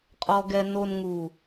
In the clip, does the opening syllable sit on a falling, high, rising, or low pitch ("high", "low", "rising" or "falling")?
low